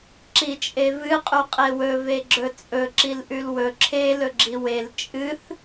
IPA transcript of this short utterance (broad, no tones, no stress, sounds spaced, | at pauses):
ǁ i t͡ʃʼ e v ɨ qʼ u qʼ e w ɵ v e ɡ͡ǁ ɵ t͡sʼ ɵ ǁ i l ʔ ʉ l w ɵ ǁʰ e l ɵ ɡ͡ǁ i w e l t͡ʃʼ ɨ θ